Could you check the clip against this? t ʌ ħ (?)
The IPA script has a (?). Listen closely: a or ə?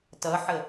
ə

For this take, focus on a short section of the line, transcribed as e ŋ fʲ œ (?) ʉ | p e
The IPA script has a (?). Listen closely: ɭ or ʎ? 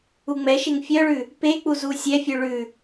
ɭ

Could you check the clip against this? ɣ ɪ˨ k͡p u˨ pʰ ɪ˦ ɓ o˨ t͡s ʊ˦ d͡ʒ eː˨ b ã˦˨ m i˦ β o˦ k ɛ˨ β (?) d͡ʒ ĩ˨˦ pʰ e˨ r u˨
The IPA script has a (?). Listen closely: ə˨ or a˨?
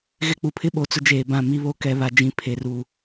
a˨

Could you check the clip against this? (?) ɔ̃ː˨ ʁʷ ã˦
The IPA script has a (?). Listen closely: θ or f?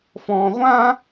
f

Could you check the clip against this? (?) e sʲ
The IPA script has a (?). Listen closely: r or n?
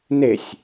n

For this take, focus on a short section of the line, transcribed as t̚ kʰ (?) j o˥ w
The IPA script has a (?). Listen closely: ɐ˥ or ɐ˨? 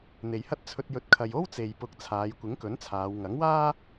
ɐ˨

